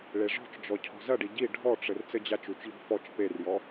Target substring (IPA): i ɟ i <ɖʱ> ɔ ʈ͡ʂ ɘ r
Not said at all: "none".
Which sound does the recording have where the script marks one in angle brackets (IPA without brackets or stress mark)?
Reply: ɖʱ